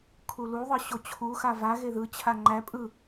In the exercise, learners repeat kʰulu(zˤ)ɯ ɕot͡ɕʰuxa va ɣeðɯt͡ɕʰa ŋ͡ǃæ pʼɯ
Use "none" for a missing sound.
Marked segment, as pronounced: ðˤ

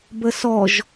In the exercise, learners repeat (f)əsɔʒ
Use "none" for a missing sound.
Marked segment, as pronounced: b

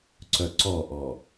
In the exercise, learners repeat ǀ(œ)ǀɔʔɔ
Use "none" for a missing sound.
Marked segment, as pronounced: œ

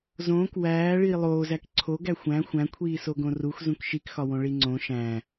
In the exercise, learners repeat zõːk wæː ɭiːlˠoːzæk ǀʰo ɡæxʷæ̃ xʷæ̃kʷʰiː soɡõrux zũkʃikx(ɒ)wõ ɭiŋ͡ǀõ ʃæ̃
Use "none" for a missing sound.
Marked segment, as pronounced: ɒ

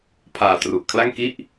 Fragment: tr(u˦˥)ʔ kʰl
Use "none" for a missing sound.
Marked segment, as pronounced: u˨˩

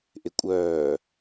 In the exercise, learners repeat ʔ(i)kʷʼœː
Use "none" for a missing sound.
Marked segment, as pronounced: ɪ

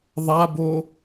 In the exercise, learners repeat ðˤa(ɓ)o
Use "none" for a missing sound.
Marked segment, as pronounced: b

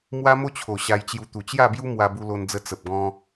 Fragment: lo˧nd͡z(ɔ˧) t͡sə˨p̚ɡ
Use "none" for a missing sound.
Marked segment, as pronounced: ə˧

